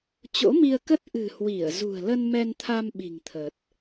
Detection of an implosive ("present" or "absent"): present